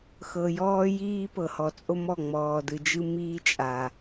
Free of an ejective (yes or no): no